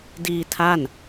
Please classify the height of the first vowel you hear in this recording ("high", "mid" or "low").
high